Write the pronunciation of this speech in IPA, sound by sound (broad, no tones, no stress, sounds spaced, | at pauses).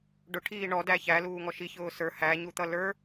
ɖ ʊ ʈʰ iː ɳ ɔ d æ ç æ l uː ŋ ɔ ʃ i ç ʊː s ə˞ h æ ɲ u t̪ ʌ l ə˞